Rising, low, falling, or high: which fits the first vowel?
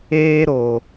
high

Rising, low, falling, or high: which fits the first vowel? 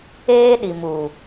high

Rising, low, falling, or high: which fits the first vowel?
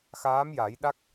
rising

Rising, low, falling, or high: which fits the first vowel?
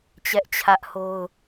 high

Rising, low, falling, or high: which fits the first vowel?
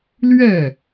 falling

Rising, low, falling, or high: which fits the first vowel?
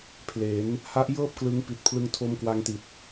rising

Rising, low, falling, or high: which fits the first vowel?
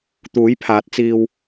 rising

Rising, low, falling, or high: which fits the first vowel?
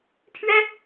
high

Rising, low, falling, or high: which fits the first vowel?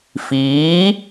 rising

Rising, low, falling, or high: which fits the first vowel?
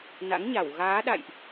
rising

